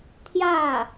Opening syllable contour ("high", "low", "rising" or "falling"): falling